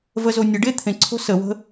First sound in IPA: v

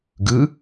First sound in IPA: ɡ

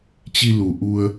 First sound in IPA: t͡ɕ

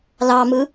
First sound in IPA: l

